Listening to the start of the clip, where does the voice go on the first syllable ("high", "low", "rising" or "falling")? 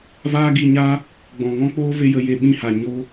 high